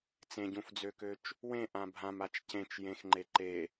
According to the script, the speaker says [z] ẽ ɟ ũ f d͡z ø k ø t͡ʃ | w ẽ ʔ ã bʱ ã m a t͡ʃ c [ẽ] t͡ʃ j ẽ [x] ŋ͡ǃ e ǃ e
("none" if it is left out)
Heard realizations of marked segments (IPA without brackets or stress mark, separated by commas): t͡s, ẽ, x